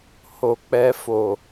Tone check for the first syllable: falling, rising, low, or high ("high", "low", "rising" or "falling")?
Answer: low